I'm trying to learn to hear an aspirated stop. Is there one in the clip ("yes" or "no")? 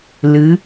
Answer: no